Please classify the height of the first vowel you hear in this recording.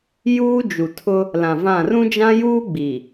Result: high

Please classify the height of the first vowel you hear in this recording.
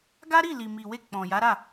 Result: low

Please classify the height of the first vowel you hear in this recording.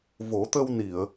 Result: mid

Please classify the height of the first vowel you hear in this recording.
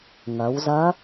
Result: low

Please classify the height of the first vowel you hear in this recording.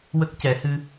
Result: mid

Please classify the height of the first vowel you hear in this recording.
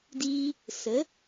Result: high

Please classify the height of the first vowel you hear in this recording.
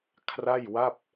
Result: low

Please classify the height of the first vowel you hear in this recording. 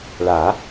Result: low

